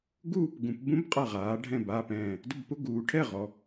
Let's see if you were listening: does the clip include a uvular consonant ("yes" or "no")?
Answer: yes